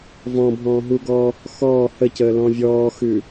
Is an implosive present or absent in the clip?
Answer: absent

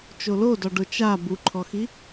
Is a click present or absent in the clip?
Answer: present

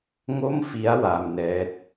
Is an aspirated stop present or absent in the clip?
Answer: absent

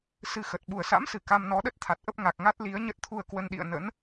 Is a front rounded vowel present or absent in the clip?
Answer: absent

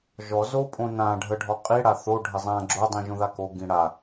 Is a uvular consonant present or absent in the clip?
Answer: present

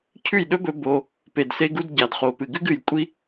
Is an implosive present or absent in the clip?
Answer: present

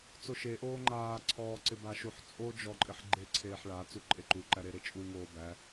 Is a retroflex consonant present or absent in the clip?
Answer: present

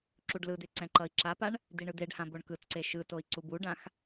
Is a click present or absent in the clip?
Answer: present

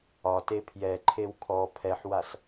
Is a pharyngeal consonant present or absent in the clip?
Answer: present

